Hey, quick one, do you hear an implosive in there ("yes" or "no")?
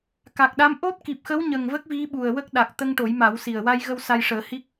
yes